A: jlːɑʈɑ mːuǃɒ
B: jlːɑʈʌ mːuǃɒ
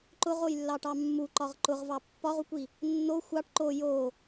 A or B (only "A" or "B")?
A